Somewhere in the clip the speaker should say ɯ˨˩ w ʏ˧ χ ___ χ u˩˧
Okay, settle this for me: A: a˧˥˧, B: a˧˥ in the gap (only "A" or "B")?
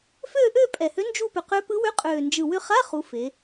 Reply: A